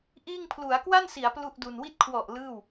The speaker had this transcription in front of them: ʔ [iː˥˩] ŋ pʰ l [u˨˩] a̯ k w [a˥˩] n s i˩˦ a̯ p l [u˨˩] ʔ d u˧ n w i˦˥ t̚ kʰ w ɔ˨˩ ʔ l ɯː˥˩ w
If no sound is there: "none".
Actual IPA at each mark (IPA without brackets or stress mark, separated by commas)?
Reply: iː˥˩, u˩˦, a˥˩, u˥˩